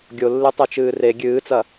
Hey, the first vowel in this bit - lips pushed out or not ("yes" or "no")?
yes